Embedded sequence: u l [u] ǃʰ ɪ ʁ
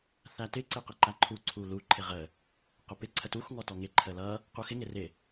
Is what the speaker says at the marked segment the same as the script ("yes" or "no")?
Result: yes